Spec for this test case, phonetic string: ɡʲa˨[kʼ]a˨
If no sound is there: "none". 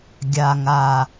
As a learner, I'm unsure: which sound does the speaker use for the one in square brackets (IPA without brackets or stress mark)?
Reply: ŋ